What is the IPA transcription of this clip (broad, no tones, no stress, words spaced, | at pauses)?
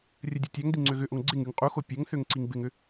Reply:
rʲədʲɐtʲaŋdi ŋ͡ǀøɣʏʔoŋ ɡ͡ǀɪŋ yŋqʼuxo pʲɐŋ θøŋǀiŋbɪŋʏ